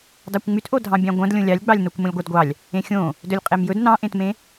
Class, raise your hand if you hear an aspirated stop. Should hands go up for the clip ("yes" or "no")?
no